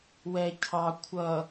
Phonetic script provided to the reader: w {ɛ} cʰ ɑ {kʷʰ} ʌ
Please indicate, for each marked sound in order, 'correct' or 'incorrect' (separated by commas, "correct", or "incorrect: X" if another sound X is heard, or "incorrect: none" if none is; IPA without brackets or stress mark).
correct, correct